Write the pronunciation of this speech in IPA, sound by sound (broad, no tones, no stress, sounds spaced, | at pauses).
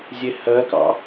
zʲ e h ɜ k ɑ̰